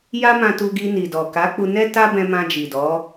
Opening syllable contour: high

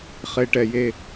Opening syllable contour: low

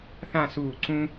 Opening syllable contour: falling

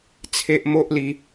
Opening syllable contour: high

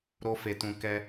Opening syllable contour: high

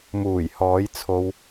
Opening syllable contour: low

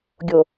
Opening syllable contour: low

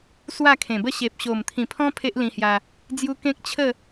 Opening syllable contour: falling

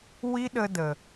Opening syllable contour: high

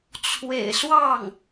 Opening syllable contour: low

